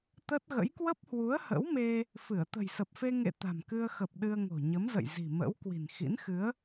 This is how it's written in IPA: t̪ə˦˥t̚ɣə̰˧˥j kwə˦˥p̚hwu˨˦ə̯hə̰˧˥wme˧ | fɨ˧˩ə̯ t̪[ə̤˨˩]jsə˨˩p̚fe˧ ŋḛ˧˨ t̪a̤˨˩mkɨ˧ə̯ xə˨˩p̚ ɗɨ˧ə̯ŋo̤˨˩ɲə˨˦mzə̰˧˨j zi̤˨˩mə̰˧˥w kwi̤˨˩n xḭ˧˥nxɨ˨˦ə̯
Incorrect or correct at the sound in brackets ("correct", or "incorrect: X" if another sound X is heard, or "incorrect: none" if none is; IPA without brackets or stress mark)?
correct